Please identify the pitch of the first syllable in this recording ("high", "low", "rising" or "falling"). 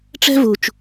high